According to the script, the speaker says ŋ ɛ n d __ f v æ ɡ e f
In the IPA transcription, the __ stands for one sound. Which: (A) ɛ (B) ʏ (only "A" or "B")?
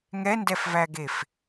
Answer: A